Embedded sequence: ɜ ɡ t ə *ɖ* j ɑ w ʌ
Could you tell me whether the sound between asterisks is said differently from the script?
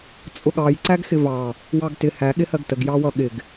yes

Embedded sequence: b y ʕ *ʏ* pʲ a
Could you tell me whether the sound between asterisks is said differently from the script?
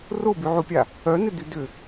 yes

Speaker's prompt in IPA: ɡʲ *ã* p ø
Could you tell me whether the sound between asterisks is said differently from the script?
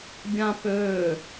no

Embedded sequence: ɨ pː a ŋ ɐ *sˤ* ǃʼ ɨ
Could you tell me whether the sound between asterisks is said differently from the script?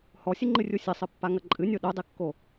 yes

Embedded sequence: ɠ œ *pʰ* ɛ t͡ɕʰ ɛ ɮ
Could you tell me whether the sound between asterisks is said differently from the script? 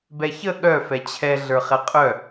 yes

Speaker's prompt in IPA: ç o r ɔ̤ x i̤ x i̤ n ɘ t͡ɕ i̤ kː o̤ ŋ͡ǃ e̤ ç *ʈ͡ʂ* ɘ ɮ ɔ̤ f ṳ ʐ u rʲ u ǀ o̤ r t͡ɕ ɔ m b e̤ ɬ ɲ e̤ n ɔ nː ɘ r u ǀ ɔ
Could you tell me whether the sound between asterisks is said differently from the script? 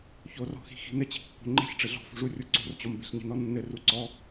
no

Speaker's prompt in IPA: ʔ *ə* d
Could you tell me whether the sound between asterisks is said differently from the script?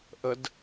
no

